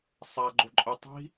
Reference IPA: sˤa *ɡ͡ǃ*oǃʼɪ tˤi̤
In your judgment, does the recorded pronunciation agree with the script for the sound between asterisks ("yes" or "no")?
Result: yes